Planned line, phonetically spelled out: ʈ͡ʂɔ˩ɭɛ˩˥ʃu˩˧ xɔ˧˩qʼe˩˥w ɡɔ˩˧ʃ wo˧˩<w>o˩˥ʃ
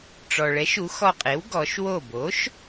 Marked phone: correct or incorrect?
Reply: incorrect